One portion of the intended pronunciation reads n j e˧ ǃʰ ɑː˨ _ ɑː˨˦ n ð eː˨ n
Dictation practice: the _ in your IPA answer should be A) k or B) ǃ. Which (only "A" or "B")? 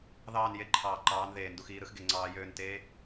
B